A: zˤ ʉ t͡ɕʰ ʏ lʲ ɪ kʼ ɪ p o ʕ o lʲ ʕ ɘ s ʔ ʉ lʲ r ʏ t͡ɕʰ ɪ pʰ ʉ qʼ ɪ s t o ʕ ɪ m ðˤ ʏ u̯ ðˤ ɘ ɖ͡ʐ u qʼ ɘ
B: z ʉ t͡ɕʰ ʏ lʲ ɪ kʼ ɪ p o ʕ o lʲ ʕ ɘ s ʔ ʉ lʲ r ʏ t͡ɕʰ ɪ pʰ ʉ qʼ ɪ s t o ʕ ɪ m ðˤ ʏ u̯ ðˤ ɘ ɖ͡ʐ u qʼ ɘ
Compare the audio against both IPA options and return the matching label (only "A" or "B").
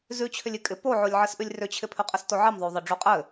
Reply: B